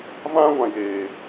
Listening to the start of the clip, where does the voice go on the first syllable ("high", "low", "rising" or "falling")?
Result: high